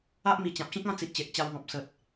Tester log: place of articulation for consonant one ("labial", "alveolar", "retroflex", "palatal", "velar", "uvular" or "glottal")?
glottal